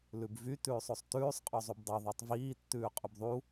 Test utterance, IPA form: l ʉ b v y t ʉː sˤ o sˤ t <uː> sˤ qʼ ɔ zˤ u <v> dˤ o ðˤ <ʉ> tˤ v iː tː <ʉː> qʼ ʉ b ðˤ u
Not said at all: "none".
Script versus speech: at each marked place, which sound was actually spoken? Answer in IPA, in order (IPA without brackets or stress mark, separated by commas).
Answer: ʉː, b, ø, ʉː